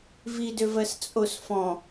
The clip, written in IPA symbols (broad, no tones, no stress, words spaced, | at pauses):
vidøvɜs t͡sʼosfɔ̃